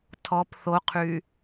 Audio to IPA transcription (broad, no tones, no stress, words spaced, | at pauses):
tʰɔp θoqʰy